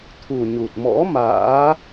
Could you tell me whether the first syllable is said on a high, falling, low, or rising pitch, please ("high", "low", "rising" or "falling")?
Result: low